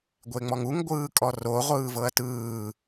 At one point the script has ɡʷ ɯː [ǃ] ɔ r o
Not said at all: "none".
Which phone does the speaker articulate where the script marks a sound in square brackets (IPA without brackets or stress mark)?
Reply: kʼ